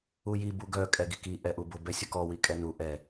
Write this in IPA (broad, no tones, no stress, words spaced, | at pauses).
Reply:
uji buɡœ kʼɛɡiki ʔɛʔubʊ bɛsʲʊkɔ wikʼɛnu ʔɛ